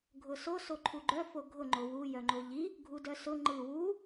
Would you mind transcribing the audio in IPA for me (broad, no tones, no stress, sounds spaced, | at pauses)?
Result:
ɡʱ ʊ s o s o ǃʰ u ɡ͡ǃ œ f o ɡʱ ʊ ŋ͡ǃ o w u j œ ŋ͡ǃ o ʎ i | ɡʱ u d œ s ʊ ŋ͡ǃ ɯ w u